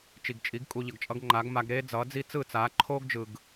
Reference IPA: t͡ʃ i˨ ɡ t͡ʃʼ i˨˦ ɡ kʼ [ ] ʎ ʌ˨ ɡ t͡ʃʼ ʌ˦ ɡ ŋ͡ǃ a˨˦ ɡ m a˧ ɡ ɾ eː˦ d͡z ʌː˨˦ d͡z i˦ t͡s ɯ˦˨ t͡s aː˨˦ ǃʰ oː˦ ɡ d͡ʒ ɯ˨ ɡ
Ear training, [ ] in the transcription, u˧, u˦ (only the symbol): u˧